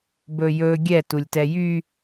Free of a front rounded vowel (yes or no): no